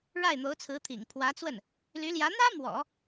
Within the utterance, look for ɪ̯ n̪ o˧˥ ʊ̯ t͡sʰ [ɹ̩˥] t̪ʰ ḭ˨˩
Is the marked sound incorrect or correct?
incorrect